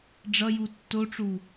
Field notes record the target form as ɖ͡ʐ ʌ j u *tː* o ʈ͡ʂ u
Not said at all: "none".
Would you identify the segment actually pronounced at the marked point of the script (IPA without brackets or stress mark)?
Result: tː